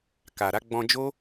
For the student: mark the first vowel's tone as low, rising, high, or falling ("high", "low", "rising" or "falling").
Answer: low